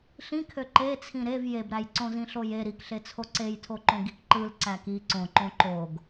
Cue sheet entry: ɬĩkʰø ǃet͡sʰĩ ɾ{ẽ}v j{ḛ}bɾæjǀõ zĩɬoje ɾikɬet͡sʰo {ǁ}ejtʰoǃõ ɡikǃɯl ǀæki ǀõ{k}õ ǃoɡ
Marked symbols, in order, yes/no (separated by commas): no, no, no, no